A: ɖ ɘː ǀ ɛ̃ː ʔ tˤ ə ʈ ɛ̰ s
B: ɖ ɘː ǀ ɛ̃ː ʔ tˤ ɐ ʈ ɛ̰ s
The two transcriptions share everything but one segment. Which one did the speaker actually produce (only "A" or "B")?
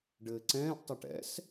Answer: B